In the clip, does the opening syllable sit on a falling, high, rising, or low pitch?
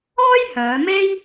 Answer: high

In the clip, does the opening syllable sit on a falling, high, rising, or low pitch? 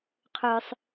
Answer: low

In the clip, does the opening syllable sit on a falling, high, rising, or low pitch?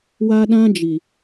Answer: high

